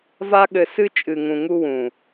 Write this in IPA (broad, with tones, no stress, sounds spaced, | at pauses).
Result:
v a˦ ɠ ɘ˧ s ɨ˧ t͡ʃʼ ɨ˨ ŋ ũ˨ ŋ u˧ w ũ˨